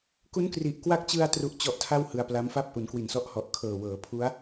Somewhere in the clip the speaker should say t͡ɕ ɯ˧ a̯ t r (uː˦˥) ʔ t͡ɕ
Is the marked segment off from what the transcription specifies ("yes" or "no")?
yes